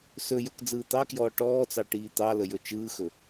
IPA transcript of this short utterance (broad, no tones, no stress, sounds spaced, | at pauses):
s ɵ j ɵ k d͡z ɯː t̪ ɑ k j ɔː ʈ ɔː t͡s ɑ ʈ iː t̪ ɑ l ə j ɵ t͡ʃ ɯː x ɵ